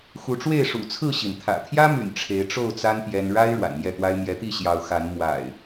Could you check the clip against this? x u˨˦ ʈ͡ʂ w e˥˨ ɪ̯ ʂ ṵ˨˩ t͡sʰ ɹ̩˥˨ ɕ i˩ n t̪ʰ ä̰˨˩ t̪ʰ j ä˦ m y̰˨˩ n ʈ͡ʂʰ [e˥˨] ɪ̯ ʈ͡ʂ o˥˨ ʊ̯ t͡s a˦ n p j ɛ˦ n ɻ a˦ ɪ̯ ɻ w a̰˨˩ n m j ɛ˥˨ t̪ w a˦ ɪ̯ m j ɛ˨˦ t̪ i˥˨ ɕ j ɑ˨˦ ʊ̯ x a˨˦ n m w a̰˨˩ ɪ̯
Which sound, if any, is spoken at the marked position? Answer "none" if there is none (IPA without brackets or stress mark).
e˨˦